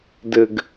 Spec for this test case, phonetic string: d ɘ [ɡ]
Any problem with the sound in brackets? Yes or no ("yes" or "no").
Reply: no